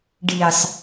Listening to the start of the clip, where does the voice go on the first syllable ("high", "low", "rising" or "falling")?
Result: low